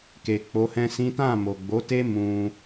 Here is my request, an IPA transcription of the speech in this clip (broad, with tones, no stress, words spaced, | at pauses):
ke˨k͡po˨˦hɛ̃˦sĩ˦ tã˦˨mo˨ɡ͡bo˨˦te˦ mũ˧